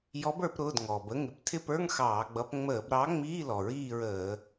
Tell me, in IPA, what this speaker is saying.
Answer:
j ɔ˨˥ b ə˞˧˩˧ p ɾ ʊː˩˧˩ d ŋ ɔ˩ b ə˩˧˩ ŋ ɪ˨˥ p tʰ ɪ˦˨ p ə˞˧˥˧ ŋ x ɑː˧˩˧ ɡ͡b ʌ˨˥ p ŋ͡m əː˧˩˧ b ɾ ɑ˨˥ ŋ͡m iː˧˥˧ l ɔ˩ ɹ iː˦˨ ɹ əː˧˩˧

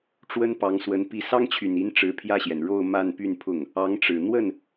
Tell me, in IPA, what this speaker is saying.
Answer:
ʈ͡ʂ w ə˥ n p ɑ˧˥ ŋ s w ə˧˥ n p i˥˩ s ɑ˥ ŋ t͡ɕʰ y˨˩ n i˧˥ n ʈ͡ʂ ɻ̩˧˥ pʰ j ä˥˩ ɕ j ɛ˩ n ɻ o˥˧ ʊ̯ m a˥˧ n p y˥˧ n pʰ ʊ˥˩ ŋ | ɑ˧˥ ŋ ʈ͡ʂ ɻ̩˨˩ n̪ w ə˥˩ n

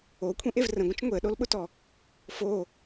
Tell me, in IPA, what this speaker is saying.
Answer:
o kʷʰ ĩ ʔ e v r ə̃ ɡʷ ə̃ t͡ʃ ŋʷ e ə̯ ɗ o l ɓ ʊ t ɔ | f o

